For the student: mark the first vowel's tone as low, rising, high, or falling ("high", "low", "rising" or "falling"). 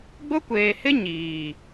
high